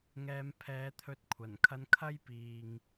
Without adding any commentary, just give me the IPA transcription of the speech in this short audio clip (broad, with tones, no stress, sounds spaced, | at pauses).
ŋ ɛː˨ m pʰ ɛː˨˧ t̪ʰ ɵ˨˥ t̚ kʷʰ ɐ˨˩ n kʰ ɐ˧ n kʰ ɐ˥ j p iː˧ ŋ